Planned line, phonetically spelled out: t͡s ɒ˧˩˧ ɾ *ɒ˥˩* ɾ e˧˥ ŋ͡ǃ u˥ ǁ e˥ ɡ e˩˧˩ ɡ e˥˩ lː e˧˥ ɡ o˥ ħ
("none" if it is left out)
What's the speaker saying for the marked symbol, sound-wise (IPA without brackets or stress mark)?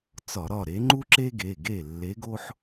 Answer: ɒ˥˩